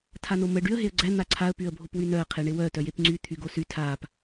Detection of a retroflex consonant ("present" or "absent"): present